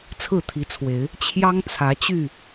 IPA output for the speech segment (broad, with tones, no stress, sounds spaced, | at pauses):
t͡sʰ ɹ̩˥˨ t̪ʰ i˨˦ t͡sʰ w e˨˦ ɪ̯ | t͡ɕʰ j ɑ˦ ŋ t͡sʰ ä˨˦ t͡ɕ y˥˨